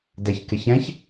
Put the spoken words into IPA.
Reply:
d ɛ ç k ɪ ç ɛ̃ ç

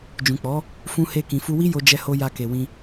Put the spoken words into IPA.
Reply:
d͡ʒ ũ˨ k͡p ɔ˨˦ | f ũ˧ h e˧ k ĩ˨ f u˧ w i˦ j o˧ d͡ʒ ɛ˧ h o˧ j a˧ k e˨ w ĩ˧

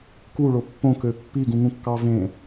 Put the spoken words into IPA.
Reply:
k u ɭ o pː õ k ø pː i ɡ ũ ŋ ũ kː ɑ v ẽ

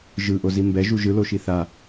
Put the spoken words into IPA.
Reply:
ʒ ɯ ʔ o z i m b ɛ ʒ u ʒ ɯ l o ʃ i θ a

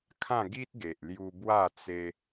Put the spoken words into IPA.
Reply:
kʰ ã˥˧ ɡ i˦ t̚ ɡ e˨ ʔ l j u˧ b w a˥˧ t͡s e˦

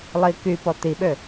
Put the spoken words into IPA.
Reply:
lˠ i k y p ɔ t̪ i ɓ ø

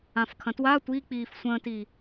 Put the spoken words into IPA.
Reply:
ã f kʰ ɐ̃ t w a tʷ i k͡p iː f sʷ ə̃ː t i

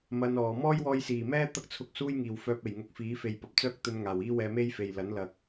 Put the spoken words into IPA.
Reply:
m ɐ˧ n ɔː˨ m ɔː˥ j w ɔː˧ j s iː˨˩ m ɛː˥ t̪ ɐ˥ k̚ t͡sʰ ʊ˧ k̚ s uː˥ j ŋ iː˨ w f œː˧ p̚ e˨˩ j ŋ ʊ˧ k̚ f iː˨˥ f e˨ j p ɐ˨ p̚ t͡s œː˥ k̚ t̪ ɵ˧ n ŋ aː˨˩ w iː˥ w ɛː˧ m e˥ j f e˨ j l ɐ˨˥ n l ɐ˨ k̚

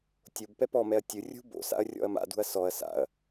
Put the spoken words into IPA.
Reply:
tʲ o b p ɛ p ɔ m ɛ ɐ̯ tʲ ɯ rʲ ṳ b o̰ s a̰ ɐ̯ rʲ ɔ̰ ɐ̯ m a̰ d ṳ ɐ̯ s ɔ ɐ̯ s a̰ ɐ̯

